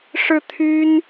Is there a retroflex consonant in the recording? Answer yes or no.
yes